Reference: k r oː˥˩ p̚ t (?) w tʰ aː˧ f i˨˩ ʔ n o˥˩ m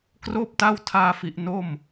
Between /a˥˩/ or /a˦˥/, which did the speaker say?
a˥˩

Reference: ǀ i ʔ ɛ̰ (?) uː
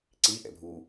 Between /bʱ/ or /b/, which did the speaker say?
bʱ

